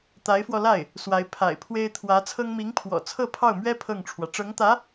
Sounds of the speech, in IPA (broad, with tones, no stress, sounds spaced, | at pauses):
t̪ a˧˥ ɪ̯ f w ɔ˧ l a˥˩ ɪ̯ | s w a˧˥ ɪ̯ pʰ a̰˨˩ ɪ̯ pʰ w e˥ ɪ̯ t̪ʰ w ä˧˥ t͡sʰ ɤ˥ ŋ m i˧˥ ŋ pʰ w ɔ̰˨˩ t͡sʰ ɤ˥˧ pʰ ɑ˥˩ ʊ̯ m ɥ ɛ˥ pʰ ɤ˥˩ ŋ ʈ͡ʂʰ w ä˩ ʈ͡ʂ ɤ˧˥ ŋ t̪ ä˧˥